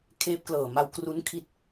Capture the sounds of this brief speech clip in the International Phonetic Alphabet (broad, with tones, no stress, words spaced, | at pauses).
kʰeː˦˥p̚klɤː˨˩ ma˧wkru˦˥nkʰi˦˥t̚